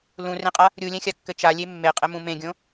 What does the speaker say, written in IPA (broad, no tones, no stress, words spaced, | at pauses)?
lũrẽqʼa | ɾʲulʲɛ̃xʲa kːɘt͡ʃalʲe mːeqʼɘ mũmẽɡʲõ